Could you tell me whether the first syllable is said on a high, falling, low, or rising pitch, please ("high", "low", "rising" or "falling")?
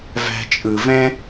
low